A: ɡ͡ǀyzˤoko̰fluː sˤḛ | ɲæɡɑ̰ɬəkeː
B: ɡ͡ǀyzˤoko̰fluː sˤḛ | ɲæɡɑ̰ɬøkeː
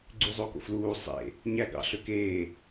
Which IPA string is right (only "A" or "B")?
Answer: B